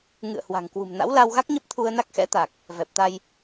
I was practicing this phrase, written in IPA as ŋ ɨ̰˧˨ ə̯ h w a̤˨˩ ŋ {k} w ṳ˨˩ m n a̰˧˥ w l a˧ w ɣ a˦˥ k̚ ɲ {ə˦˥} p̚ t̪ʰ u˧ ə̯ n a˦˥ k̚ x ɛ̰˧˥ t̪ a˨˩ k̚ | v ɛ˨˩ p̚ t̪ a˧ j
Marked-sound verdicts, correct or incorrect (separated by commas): correct, correct